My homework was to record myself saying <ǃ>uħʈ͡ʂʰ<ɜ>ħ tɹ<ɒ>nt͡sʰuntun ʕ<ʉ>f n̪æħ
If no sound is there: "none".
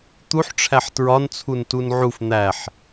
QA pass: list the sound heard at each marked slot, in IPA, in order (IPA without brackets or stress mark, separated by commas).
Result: t̪, æ, ɒ, u